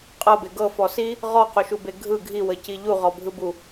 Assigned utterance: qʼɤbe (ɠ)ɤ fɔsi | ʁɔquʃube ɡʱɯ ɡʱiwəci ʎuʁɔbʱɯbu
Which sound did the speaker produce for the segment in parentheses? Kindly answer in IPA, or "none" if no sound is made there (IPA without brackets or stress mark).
ɡ